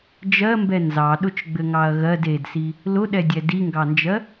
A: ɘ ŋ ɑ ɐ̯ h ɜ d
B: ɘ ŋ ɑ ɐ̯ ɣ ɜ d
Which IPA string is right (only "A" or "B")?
B